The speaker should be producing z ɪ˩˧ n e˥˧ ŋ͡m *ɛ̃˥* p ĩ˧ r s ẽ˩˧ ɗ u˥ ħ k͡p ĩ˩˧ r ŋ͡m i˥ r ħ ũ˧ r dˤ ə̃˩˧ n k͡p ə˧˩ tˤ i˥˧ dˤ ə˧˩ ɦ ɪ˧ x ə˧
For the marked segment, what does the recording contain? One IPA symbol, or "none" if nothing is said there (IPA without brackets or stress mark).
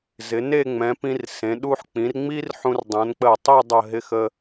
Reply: ɛ̃˩˧